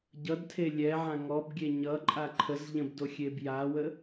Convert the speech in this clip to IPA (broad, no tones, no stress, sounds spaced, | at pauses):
ɟ ʌ d tʰ e lʲ ɛ ʕ ã ŋ ɔ b ɡʲ e ɲ ʌ ǃʼ a ǃʰ ə z ʎ ə̃ b d o xʲ e b j a w ə